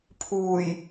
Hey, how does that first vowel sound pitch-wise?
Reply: low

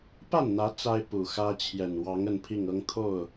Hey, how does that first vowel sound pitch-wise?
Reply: falling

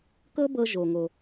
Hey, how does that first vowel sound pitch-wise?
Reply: high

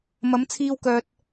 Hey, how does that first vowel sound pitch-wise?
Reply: rising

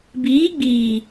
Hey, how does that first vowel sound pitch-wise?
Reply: rising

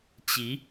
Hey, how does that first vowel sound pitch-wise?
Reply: rising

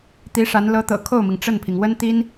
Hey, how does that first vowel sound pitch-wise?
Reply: rising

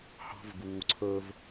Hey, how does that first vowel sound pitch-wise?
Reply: high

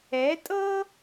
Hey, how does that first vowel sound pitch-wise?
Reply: rising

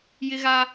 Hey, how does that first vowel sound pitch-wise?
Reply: high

